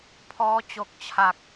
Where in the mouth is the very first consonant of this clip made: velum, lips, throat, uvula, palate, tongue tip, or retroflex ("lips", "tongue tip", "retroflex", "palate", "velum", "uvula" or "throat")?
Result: lips